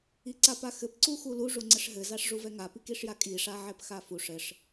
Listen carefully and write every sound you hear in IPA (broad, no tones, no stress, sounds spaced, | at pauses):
i ǀ a p a x ɘ p ǀ u x u l u ʐ u ŋ͡ǀ ɘ ʂ ɦ ɘ z a ʂ ʐ u v ɛ ŋ a p i k i ʂ j a kʼ i ʂ a ʕ ɛ p x a f u ʂ ɘ ʂ